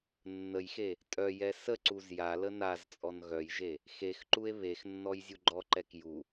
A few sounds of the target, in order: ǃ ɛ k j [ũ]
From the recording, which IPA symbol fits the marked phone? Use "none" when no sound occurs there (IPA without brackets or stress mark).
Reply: u